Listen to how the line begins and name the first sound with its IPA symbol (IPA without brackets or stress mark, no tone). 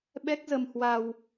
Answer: ɓ